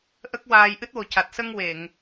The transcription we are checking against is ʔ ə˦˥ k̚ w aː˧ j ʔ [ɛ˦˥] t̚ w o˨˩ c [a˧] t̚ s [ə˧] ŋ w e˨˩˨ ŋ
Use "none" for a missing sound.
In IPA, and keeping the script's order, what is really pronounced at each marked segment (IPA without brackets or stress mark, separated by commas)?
ɨ˦˥, a˨˩, ə˧